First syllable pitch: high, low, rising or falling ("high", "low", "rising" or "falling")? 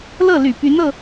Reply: falling